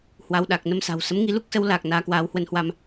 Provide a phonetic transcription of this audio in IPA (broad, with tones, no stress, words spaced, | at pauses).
hwa˧w ɗa˨˩k̚nə˨˦m sa̤˨˩wsə˨˦mŋi˧ lu˦˥k̚sə˨˦wlaː˨˩k̚ naː˨˦kwaː˨˦whwə˧nhwa˧m